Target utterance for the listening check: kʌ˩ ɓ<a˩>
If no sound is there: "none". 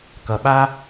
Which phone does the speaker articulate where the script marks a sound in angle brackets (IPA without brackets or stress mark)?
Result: a˦